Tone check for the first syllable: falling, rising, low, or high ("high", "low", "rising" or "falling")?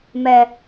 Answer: low